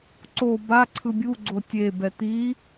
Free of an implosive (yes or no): yes